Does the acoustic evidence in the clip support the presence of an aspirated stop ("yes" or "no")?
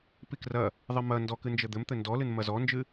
no